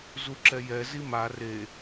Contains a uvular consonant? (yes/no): no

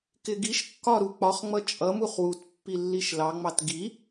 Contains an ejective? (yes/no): yes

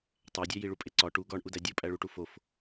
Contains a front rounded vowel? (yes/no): no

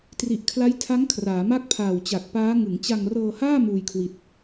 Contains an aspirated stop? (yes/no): yes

